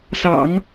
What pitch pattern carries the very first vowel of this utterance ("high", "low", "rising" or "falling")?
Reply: low